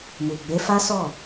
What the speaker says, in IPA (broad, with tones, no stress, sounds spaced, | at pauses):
m u˨ ɡ͡b e˨˦ f a˦ s ɔ˦˨